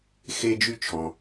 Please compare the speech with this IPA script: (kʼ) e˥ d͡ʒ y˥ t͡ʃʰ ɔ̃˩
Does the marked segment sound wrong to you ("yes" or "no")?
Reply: yes